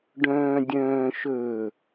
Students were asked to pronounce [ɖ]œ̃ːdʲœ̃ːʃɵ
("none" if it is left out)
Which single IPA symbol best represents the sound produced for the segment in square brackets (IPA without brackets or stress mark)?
ɖ